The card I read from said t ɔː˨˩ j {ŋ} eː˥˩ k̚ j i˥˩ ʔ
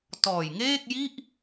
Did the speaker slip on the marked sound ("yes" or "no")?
no